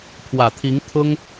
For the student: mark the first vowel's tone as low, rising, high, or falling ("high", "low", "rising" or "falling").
low